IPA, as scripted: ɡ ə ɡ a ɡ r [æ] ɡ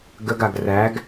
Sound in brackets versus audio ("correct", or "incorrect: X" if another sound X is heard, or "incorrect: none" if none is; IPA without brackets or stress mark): correct